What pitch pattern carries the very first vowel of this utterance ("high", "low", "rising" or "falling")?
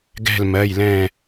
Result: falling